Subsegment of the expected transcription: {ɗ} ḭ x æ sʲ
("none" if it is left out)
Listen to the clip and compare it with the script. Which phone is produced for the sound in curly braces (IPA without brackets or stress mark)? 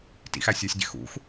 t